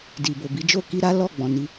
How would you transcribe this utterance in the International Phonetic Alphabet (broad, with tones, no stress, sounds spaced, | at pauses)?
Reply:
d i˨ b o˨ b i˨˦ d͡ʒ o˦˨ k i˧ ɾ a˦ l ɔ˦˨ ɡ͡b ɔ̃˨ n i˧